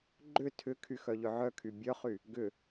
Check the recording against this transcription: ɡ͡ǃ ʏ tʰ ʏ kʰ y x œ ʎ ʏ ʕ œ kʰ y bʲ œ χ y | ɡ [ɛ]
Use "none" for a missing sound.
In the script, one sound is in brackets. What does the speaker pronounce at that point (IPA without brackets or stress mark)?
ʏ